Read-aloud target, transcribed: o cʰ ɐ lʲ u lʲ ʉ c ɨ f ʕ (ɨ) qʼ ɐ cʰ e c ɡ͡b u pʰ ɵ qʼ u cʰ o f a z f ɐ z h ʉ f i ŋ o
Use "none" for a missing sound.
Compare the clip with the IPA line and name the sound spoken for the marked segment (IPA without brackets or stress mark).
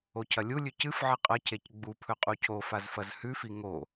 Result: ɨ